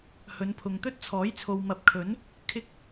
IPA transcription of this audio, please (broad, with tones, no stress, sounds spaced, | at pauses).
h ɵ˨˧ n pʰ ʊ˨ ŋ t̪ ɵ˥ t̚ t͡sʰ ɔː˨˥ j t͡sʰ o˨ w m ɐ˨˥ p̚ kʰ ɵ˨˥ n | kʰ ɪ˧ k̚